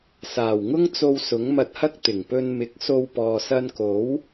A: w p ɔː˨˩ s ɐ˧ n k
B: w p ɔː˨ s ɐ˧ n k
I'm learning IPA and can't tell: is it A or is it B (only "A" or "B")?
B